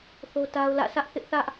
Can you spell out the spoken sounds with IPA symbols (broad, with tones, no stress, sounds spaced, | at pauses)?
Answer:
θ o˦ t a˦ ʊ̯ l ä̰˦˨ sʰ ä˦ ʔ θ ɪ˦ ʔ θ ä˦ ʔ